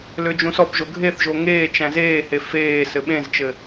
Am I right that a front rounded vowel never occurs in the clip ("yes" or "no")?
no